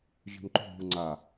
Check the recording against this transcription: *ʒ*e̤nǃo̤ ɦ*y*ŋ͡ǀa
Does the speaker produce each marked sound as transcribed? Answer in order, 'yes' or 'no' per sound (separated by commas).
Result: yes, no